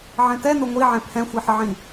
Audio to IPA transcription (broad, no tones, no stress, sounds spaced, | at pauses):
ʕ ɛ̃ t ɛ n o ŋʷ i ʕ ɛ̃ pʰ ɛ̃ xʷ i ħ ə ʕ ĩ